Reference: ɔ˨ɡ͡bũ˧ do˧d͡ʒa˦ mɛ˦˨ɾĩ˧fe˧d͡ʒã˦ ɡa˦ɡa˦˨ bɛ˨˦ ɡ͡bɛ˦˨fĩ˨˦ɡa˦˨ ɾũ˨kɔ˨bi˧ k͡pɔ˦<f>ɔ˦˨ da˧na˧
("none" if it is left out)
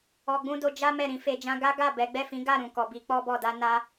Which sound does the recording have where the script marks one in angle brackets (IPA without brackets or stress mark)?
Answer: b